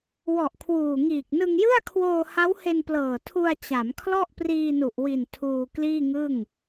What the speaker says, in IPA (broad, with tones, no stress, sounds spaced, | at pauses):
w ɔ˨˩ ʔ kʰ w uː˨˩ ŋ iː˨˩ k̚ n ɯ˧ ŋ j ɯ˥˩ a̯ kʰ w oː˧ h a˦˥ w h e˧ n p l ɤː˨˩ tʰ u˧ a̯ t͡ɕ a˩˦ m kʰ l ɔ˥˩ ʔ p r iː˧ n u˨˩ ʔ w i˨˩ n tʰ uː˧ k l iː˥˩ ŋ ɯ˥˩ ŋ